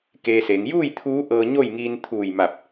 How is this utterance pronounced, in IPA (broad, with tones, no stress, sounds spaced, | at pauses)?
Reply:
k eː˧ s e˩˧ ŋ j uː˥˨ j t̪ʰ uː˧˥ ʔ ɤː˧ ɲ o˥˨ j ŋ iː˧ n t̪ʰ uː˧˩ j m a˧˩ p̚